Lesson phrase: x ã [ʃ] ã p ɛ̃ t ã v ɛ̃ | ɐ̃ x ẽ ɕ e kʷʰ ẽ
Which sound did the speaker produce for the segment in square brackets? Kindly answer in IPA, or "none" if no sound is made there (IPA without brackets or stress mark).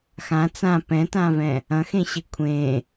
t͡s